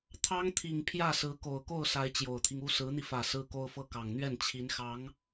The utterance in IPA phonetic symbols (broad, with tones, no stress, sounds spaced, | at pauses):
t̪ʰ ɑ˥ ŋ t̪ʰ i˨˩ ŋ pʰ j ä˥˩ s ɹ̩˧˥ k o˨˩ ʊ̯ k o˥˩ ʊ̯ s a˧˥ ɪ̯ t͡ɕ j o˨˩ ʊ̯ t̪ʰ i˦ ŋ u˥ s ɹ̩˧˥ n̪ i˧ f ä˨˩ s ɹ̩˥ k o˥ ʊ̯ f ɤ˥ k ɑ˨˩ ŋ n̪ ɥ ɛ˥˩ n t͡ɕʰ i˧˥ n x ɑ˧˥ ŋ